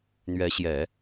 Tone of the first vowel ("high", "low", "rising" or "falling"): rising